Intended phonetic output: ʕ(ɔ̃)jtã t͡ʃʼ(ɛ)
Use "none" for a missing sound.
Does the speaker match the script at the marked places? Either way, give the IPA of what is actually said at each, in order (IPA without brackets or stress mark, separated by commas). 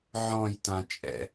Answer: ɔ̃, ɛ̰